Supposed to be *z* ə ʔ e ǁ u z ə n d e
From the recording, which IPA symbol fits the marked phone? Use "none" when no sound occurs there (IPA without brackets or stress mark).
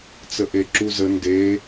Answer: t͡s